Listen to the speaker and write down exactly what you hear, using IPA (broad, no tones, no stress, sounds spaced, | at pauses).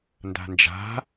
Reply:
n d a̤ n d͡ʒ a̤